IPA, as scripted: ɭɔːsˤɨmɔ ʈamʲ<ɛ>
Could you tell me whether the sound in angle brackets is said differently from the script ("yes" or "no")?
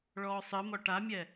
no